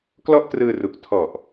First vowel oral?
yes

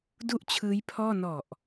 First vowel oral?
yes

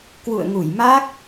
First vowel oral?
yes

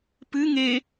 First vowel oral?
yes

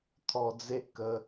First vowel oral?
yes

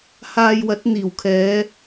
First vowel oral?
yes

